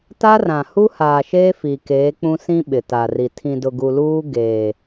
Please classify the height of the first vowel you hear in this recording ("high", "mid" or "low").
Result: low